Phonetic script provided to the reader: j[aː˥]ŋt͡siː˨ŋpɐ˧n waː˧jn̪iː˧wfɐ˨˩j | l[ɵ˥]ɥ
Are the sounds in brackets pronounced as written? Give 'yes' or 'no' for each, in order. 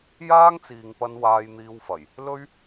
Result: yes, yes

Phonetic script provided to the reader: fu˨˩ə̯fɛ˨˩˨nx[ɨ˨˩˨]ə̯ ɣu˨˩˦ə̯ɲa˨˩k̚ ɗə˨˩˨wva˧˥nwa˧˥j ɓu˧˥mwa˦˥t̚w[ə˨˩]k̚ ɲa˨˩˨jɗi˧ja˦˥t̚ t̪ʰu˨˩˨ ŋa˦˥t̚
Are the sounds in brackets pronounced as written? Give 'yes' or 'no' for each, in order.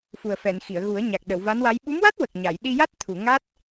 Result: no, yes

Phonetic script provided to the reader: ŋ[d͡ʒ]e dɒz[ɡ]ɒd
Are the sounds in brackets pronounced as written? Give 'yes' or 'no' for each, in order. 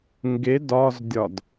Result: no, no

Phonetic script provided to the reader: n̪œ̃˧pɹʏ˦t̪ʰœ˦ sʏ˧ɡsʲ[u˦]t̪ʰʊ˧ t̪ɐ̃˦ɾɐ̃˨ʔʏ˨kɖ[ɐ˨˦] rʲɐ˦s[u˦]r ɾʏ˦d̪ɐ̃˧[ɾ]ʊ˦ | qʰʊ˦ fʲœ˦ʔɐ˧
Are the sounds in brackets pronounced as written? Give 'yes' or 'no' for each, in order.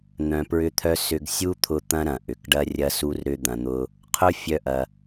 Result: yes, no, yes, no

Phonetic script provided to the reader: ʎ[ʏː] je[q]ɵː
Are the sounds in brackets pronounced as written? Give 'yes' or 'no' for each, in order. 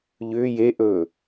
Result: yes, no

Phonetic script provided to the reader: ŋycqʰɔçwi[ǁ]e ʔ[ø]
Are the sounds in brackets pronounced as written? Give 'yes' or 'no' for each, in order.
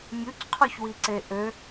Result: no, yes

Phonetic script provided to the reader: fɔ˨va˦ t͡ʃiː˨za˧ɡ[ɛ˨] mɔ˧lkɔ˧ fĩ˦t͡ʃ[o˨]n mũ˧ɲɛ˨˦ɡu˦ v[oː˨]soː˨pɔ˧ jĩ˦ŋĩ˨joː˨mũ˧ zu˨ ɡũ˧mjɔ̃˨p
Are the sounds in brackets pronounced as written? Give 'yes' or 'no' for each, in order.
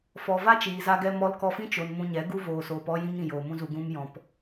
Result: no, yes, yes

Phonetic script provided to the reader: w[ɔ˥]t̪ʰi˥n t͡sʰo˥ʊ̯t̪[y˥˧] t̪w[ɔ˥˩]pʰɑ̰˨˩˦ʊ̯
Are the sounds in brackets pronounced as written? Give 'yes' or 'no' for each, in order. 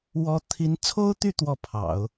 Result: yes, yes, yes

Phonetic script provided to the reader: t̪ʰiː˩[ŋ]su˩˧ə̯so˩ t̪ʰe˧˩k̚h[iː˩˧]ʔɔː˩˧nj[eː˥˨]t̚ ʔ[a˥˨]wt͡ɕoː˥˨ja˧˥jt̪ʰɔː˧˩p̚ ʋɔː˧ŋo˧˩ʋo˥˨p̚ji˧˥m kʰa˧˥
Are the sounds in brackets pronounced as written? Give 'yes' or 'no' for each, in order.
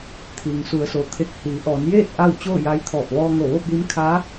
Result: yes, yes, yes, yes

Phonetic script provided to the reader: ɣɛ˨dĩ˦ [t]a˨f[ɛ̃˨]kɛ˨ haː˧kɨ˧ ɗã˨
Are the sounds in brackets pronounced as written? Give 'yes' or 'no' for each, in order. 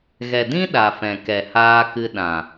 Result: no, yes

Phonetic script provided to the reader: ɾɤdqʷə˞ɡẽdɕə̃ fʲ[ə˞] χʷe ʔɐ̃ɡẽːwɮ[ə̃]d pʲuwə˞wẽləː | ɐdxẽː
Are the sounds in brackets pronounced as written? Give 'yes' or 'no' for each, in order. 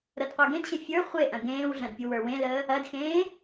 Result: yes, no

